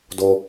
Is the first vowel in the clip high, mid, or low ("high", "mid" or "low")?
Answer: mid